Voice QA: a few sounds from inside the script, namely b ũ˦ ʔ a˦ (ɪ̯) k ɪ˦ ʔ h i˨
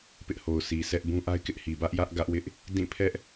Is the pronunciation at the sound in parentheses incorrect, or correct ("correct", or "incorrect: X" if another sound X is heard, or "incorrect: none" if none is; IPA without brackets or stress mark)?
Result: correct